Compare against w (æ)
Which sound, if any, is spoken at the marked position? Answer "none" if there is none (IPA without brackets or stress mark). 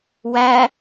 æ